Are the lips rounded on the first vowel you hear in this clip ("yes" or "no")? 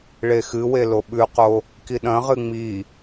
no